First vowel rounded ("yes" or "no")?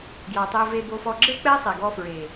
yes